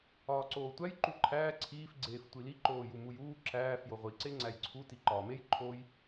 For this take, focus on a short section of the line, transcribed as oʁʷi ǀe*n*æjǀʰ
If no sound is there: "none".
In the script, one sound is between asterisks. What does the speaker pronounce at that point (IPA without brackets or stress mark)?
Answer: ŋ͡ǀ